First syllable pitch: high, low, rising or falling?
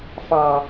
low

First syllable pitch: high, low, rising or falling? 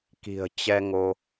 low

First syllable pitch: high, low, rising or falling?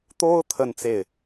high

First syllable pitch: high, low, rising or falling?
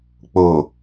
low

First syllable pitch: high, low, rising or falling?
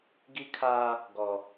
high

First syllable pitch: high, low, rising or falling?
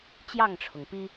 falling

